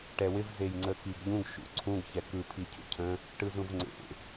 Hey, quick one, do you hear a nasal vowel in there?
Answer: yes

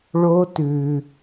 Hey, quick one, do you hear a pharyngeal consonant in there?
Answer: no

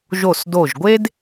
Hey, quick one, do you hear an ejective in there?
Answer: no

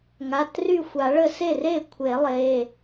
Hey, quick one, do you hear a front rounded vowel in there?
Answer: yes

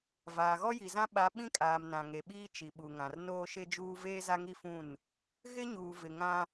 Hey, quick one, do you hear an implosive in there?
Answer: yes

